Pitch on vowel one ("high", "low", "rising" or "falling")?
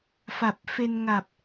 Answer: low